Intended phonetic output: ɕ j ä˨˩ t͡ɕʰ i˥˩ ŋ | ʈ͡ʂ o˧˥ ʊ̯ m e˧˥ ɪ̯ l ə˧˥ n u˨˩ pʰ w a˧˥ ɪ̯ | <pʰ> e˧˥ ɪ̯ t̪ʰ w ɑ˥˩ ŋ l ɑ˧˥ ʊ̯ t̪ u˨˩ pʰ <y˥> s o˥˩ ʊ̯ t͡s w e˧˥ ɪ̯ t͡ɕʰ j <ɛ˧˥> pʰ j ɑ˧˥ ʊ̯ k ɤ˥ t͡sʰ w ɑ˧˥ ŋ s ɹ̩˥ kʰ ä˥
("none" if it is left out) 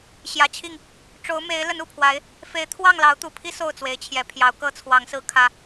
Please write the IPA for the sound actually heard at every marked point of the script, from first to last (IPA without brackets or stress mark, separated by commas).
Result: f, i˥, ɛ˧˥